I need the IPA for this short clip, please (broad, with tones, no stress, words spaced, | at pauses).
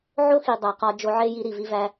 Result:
ʕo˦xi˨ dˤæ˨qɒ˧ d͡ʒo˧ʕe˦ji˧ ɾi˨vi˧væ˧